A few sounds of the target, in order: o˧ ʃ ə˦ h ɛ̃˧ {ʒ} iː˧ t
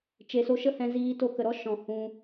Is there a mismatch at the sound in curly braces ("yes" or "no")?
yes